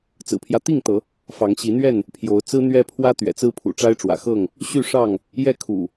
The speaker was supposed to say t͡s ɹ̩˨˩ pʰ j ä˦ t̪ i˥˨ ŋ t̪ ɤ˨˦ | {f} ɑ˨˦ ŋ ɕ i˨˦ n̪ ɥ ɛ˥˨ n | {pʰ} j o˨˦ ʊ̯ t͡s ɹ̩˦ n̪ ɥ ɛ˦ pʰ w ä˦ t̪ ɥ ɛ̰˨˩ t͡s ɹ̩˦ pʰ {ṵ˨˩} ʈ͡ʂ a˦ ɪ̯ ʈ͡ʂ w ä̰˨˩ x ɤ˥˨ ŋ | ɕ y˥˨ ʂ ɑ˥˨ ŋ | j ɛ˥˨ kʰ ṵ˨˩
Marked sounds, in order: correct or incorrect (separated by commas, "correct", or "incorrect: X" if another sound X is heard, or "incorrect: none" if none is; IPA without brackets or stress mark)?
correct, correct, correct